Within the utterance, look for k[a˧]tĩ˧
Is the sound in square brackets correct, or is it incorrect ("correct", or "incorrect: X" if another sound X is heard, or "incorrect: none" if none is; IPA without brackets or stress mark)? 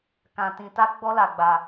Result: incorrect: ã˧